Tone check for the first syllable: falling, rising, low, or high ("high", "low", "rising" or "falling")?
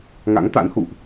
rising